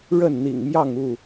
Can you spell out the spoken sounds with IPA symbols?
ɻ ə˥˨ n n̪ ḭ˨˩ ŋ m j ɑ˥˨ ŋ u˥˨

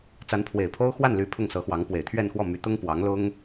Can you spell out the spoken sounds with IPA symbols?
t͡s a˧˥ n pʰ w e˨˩ ɪ̯ pʰ o˥ ʊ̯ x w a˥˩ n l y˧˥ pʰ ʊ˥˩ ŋ s ɤ˧˥ x w ɑ˧˥ ŋ p w e˨˩ ɪ̯ t̪ʰ ɥ ɛ˥˧ n x w ɔ˥˩ m y˧˥ t̪ ʊ˥ ŋ p w ɑ˧˥ ŋ l ʊ˥ ŋ

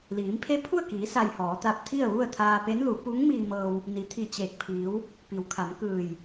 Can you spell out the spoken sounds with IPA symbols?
l iː˩˧ m pʰ e˧˥ pʰ u˥˨ ə̯ k iː˩˧ s a˧ j h ɔː˩˧ t̪ a˧ p̚ t̪ʰ i˥˨ ə̯ ʋ u˥˨ ə̯ t̪ʰ aː˧ p e˧˥ n l u˩˧ p u˧˥ ŋ m iː˧ m ɤː˧ w | n i˩˧ t̪ʰ i˧˩ t͡ɕ eː˧˩ k̚ pʰ iː˩˧ w | p i˩˧ w kʰ a˩˧ m k ɯː˧˩ j

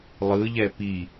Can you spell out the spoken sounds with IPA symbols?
lˠ ɯ ʎ ɛ p i

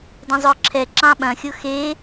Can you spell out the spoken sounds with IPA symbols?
d ɐ̃ zˤ ʊː ǁʰ ɛ ǁ ɑ̃ ɓ ɐ̃ xʲ ʊ x e

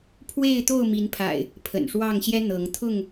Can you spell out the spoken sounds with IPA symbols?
pʰ w e˥˨ ɪ̯ t̪ o˥˨ ʊ̯ m i˨˦ n pʰ a̰˨˩ ɪ̯ | pʰ ə̰˨˩ n ʂ w ɑ˥˨ ŋ ɕ j ɛ˦ n̪ ɤ˨˦ ŋ t̪ʰ ʊ˥˨ ŋ

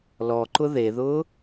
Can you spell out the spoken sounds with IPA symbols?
l ɔ ǃ ʊ ð e ð ʊː

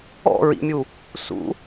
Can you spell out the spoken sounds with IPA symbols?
ɔ̰ ɹ ḭ mʲ u | s ṵ

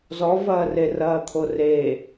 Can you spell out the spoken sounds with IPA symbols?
z ɔ v ɐː r e r ɐː t̪ʰ o r e

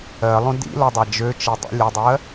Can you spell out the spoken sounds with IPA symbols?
ɜ lˠ õ d ḭ l ɔ dˤ a d͡ʒ ø t͡ʃ e dˤ ḛ lʲ ə dˤ ɜ

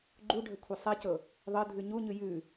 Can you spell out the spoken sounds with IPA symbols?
ɡ͡ǃ u ɖʱ ə kʷʰ ɛ sˤ ɛ c ɤ | ðˤ ɤ dʱ ʉ ɲ u ɲ ʉ j ʉ

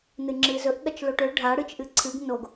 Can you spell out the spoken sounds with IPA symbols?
n ɨ ŋ͡ǁ ɨ z ɵ ʔ ɠ ɐ t͡ʃ l o ʈ ɵ ɖʱ a ɽ ɨ t͡ʃ ʔ ɨ ǀʰ ɨ ɡ n o ɡ

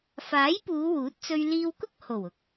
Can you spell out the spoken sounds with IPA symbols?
f aː˨˥ j p uː˨˧ w uː˨˥ t̚ t͡s ɵ˧ ɥ l iː˧ w k ʊ˥ k̚ h o˨˩ w ʊ˨ k̚

